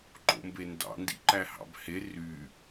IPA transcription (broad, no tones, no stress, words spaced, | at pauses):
ǃo̰mbendɑ̰ ndḭǃæhɑ̰bhe ry